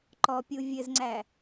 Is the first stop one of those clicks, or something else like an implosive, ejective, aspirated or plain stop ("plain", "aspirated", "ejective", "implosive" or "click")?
click